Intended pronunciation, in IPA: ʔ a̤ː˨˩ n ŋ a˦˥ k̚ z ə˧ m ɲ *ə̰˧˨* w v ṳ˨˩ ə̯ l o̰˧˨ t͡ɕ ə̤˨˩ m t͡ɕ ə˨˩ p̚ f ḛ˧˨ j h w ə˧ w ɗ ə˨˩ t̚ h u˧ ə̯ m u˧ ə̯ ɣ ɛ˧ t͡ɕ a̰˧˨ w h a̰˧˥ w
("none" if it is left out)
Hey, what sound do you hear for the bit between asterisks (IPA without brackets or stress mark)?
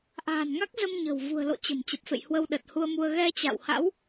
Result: ə̤˨˩